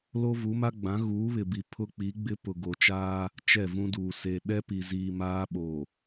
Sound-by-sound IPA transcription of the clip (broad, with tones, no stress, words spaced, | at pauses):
lo˦vu˨˦ma˦ ɡ͡bã˨˦ɣuː˨˦βɪ˨bi˨ pʰʊ˦k͡pi˨˦ɡ͡bɪ˦ pʊ˨ɡo˨t͡ʃaː˦ | t͡ʃɛ˦˨vũ˦duː˨ se˨ ɗɛ˦pi˨ziː˨ maː˦ɓo˨